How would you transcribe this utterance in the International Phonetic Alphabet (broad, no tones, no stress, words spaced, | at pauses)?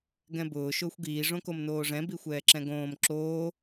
ɡɛ̃bʊː ʃʊːxʷɡiː ʐõkomnoːʐɛ̃ bixʷɛːǁɛ̃ɡõːm ǁoː